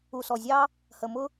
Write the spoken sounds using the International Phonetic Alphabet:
u˨sɔ˨zʲɑ˦ | hə˨mʊ˦

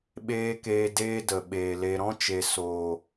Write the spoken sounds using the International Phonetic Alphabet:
ɓeː˦keː˧deː˦ də˨ɓeː˨ le˧ ɾɔ̃˦t͡ʃe˨ soː˨

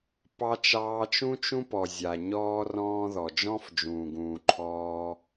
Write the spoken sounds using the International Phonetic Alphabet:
pɑ˧t͡ʃɑː˧t͡ʃũ˦t͡ʃũ˦ pɔ˨zʲa˨ ɲɔː˦rɔ̃ː˦ðɔ˨ d͡ʒɔ̃˦fd͡ʒũː˨ɡũː˨ǃʰɔː˧

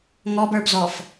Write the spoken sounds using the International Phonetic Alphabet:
ŋɔbə˞bzɔːf

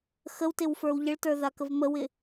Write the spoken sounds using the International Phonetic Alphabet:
xəwtɪwfə˞w ʎəɭtə˞ðakəv məwɪ

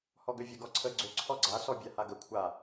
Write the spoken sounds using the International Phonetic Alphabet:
hɔɡøvʲə ɡɔǀʰə ɡ͡ǀø ǀʰɔɡ͡ǀa sɔbʲahaɡə kʷʰa

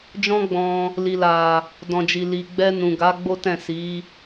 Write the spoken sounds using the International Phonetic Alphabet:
d͡ʒɔ̃˦ɡ͡bɔ̃˧ | li˨la˨ | dɔ̃˨d͡ʒi˨ li˨ɡ͡bɛ˧ nũ˨ɡa˨˦ ɡ͡bo˦tɛ̃˦˨ si˨˦

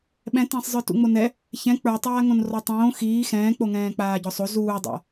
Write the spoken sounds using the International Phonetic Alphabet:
ɓɛ̃tæ̃sˤzˤə˞ tṵŋ͡monɛ | çɛ̃ k͡pə˞tˤaːŋõnrɔ tˤõː xiː xɛ̃ːk͡po ŋɛ̃ːk͡paːɟɔsˤo zuːdˤa̰

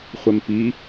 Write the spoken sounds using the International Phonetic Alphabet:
χʷɛmpi

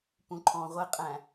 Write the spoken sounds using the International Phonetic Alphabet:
pũǃʰɔ̃ʁʷɪqʼæ̃

